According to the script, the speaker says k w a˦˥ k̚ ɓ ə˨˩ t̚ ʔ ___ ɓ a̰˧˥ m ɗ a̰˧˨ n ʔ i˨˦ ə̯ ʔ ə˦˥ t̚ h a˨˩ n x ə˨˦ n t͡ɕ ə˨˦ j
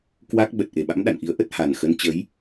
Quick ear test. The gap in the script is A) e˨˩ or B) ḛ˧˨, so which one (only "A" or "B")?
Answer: A